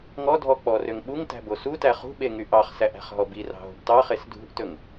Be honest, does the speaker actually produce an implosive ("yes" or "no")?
yes